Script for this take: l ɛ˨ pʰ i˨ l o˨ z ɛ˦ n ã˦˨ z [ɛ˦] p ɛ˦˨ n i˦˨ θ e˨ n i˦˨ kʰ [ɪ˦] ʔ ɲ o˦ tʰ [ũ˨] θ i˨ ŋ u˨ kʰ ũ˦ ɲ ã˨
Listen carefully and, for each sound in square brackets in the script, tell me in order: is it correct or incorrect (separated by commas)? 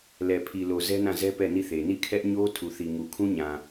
correct, incorrect, incorrect